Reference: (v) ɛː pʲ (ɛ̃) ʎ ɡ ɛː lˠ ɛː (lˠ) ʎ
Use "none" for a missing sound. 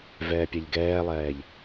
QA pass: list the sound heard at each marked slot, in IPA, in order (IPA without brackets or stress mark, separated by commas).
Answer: v, ɛ, none